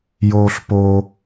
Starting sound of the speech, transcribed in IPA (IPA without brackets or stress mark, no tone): j